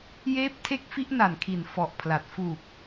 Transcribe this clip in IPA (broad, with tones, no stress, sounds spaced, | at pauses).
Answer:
j eː˦˥ p̚ tʰ e˦˥ k̚ f i˦˥ ʔ n a˨˩ n kʰ i˨˩ n f ɔ˨˩ ʔ pʰ l a˨˩ t̚ f uː˨˩ k̚